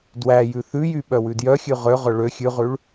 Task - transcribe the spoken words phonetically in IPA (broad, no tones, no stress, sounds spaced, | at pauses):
d w æ j ʉ θ ʉ j y ɓ œ w ʉ d j œ xʲ ʉ ʁ ø ʁ œ ɭ ø xʲ ʉ ʁ ʉ ɭ